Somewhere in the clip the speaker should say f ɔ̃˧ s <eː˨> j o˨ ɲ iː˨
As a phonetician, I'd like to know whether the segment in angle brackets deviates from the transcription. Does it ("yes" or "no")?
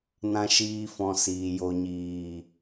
yes